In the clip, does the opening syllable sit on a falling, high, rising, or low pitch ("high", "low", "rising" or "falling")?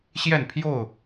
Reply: falling